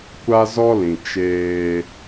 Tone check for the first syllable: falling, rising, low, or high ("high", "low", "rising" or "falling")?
high